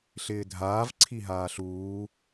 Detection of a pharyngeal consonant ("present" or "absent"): absent